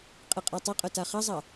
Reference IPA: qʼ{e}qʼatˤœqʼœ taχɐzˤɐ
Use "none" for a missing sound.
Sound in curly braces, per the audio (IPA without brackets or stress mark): e